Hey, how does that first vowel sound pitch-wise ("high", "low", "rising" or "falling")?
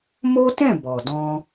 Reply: high